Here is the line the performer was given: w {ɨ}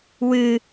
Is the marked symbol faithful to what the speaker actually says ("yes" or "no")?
yes